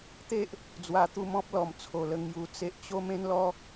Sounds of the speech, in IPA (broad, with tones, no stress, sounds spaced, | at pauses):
t̪ e˦ ʔ | d͡z w a˨˩ t̪ u˧ m ɔ̃˦ p̚ l ɔ˨˩ m t͡sʰ o˨˩ l ə˧ ŋ j u˧ t͡s e˦ ʔ t͡ɕ o˦ m ẽ˦ n l ɔ˦